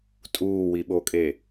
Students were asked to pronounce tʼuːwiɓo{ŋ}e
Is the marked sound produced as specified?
no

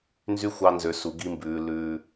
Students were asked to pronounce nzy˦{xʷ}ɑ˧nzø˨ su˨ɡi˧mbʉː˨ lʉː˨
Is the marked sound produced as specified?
yes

